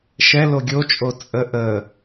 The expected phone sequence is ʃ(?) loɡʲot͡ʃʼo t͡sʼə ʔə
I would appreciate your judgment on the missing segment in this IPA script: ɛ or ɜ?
ɛ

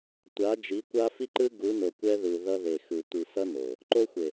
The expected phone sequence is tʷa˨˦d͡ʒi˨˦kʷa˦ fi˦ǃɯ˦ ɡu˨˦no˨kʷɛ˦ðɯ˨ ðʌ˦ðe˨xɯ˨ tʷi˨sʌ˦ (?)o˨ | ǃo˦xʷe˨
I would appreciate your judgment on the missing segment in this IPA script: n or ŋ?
n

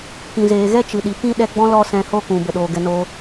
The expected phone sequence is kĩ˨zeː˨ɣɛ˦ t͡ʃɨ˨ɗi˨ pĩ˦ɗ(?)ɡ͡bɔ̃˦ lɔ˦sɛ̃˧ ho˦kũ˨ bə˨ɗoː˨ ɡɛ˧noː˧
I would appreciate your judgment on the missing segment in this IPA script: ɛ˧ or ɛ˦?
ɛ˧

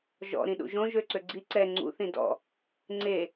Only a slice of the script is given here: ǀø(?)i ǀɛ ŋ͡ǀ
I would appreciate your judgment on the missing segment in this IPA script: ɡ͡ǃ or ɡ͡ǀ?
ɡ͡ǀ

